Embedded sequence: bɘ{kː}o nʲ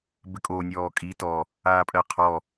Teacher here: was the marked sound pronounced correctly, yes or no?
no